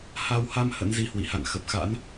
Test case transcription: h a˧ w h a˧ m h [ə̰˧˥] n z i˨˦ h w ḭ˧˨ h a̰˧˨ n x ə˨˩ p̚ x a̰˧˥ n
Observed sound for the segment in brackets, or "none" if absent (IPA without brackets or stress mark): ə̰˧˥